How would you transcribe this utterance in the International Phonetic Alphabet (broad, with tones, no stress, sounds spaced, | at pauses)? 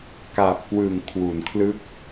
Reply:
k aː˨˩ p̚ k w ɯː˨˩ ŋ kʰ w u˩˦ n kʰ l ɯ˥˩ k̚